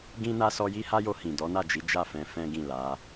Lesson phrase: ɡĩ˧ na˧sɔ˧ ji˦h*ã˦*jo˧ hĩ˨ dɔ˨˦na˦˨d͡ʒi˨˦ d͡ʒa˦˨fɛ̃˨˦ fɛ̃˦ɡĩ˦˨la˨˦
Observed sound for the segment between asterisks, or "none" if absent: a˦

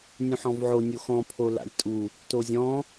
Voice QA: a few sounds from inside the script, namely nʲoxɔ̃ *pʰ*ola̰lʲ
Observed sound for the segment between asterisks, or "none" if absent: pʰ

